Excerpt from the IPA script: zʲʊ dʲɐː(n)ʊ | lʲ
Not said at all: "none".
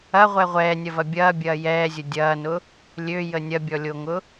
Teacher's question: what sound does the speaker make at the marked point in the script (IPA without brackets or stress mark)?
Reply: n